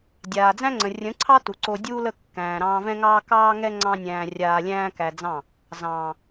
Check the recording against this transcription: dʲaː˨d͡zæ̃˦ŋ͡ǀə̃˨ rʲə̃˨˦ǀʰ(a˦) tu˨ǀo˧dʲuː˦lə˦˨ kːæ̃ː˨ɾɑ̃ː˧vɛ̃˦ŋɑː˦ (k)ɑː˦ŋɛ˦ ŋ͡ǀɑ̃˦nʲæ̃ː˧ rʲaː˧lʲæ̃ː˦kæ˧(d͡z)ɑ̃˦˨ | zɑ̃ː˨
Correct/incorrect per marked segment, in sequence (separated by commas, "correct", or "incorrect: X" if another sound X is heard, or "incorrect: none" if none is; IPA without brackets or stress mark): incorrect: ɑ˦, correct, correct